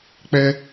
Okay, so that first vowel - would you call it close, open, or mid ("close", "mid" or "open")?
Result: mid